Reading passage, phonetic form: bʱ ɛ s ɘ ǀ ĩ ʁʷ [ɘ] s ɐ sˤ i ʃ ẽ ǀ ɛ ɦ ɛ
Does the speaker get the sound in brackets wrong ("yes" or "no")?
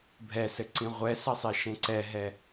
yes